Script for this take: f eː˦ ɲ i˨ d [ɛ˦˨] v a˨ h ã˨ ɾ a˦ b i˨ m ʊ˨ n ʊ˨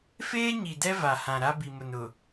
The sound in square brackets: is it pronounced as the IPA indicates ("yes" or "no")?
no